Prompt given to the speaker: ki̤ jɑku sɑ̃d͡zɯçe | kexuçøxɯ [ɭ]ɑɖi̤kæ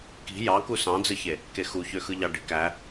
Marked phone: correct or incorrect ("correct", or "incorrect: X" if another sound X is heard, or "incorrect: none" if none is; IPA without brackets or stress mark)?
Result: incorrect: ʎ